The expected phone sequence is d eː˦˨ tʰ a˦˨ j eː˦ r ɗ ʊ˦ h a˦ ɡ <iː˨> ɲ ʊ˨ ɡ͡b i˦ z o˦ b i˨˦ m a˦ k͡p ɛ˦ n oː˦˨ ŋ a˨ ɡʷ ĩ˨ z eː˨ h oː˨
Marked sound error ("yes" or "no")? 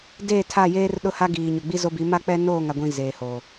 no